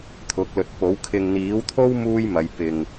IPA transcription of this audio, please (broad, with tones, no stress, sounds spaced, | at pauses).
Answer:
t̪ʰ ʊ˨˥ k̚ l ɵ˨ t̚ p o˨˥ w kʰ ɪ˨ ŋ n̪ iː˨˥ w t̪ʰ o˥ w m uː˥ j m ɐ˨˧ j p ɪ˨ ŋ